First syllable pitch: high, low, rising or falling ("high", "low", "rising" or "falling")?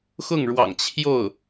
falling